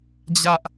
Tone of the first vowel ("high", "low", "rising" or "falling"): high